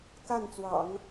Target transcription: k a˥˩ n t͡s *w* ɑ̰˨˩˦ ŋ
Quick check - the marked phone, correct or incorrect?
correct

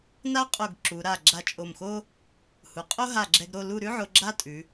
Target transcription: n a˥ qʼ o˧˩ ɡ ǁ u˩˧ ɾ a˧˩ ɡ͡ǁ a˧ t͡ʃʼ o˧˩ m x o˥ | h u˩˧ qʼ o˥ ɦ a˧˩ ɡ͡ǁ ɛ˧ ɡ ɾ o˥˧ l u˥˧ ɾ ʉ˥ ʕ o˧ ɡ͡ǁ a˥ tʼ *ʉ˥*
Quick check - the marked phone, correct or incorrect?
incorrect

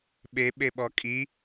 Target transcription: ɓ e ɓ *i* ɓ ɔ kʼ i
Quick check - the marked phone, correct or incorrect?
incorrect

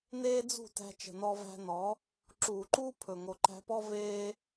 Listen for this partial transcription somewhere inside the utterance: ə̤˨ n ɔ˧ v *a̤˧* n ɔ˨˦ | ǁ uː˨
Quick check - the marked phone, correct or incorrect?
incorrect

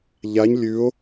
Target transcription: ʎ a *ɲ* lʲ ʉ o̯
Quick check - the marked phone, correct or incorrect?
correct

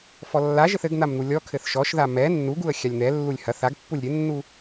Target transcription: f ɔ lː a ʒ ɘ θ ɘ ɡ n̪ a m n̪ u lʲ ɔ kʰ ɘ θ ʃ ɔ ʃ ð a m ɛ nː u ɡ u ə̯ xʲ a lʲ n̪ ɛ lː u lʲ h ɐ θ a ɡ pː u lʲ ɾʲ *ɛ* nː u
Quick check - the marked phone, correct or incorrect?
incorrect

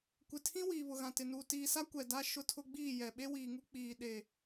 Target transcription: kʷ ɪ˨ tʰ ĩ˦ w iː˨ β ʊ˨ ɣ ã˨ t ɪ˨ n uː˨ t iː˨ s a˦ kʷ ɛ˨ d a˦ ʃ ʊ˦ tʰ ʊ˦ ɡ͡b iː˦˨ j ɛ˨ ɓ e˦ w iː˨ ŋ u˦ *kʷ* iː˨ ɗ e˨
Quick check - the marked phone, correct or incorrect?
incorrect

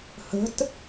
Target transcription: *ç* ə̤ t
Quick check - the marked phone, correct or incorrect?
incorrect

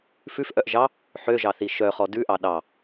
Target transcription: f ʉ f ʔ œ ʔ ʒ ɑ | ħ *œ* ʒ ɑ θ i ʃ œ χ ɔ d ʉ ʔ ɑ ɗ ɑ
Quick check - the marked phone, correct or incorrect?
incorrect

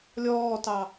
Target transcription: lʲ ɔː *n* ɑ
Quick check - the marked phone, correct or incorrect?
incorrect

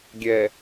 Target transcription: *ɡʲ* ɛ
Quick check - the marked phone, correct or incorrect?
correct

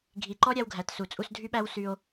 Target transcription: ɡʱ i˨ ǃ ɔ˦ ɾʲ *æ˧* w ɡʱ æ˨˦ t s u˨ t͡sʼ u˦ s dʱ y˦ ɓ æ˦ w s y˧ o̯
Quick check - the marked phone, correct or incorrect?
incorrect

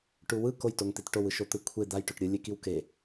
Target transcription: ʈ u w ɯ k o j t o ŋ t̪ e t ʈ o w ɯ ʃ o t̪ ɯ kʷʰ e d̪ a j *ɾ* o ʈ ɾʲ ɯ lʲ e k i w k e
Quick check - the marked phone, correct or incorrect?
incorrect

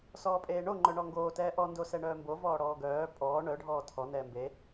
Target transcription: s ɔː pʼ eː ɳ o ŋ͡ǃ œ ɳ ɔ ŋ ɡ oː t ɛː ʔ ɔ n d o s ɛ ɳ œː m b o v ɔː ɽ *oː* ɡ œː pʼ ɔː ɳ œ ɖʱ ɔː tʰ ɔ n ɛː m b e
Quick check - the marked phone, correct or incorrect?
incorrect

